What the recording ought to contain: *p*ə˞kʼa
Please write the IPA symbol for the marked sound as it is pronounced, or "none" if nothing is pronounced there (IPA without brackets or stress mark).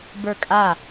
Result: b